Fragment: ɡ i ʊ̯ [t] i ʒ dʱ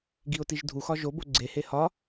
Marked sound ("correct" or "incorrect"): correct